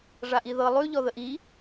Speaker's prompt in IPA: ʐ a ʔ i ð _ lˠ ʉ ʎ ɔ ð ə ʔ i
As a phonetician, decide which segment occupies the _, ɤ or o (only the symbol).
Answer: ɤ